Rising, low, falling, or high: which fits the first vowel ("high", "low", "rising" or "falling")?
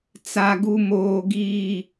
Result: high